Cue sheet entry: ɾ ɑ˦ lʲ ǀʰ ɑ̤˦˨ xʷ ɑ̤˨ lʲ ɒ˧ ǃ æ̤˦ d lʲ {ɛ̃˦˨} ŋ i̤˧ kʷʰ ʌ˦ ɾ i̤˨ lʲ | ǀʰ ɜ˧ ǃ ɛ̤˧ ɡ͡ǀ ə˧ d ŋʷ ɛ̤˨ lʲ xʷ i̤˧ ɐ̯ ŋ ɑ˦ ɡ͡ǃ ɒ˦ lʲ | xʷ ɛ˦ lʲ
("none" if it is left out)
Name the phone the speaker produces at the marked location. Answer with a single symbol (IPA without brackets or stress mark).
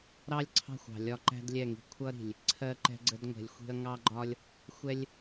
ɛ˦˨